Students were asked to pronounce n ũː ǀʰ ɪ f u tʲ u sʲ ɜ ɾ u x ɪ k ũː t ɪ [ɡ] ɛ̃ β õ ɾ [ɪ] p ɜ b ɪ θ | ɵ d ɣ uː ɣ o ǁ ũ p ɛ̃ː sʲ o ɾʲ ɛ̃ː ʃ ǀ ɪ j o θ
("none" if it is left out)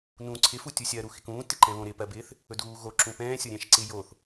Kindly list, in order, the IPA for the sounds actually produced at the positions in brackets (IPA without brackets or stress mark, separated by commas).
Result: ǃ, ɪ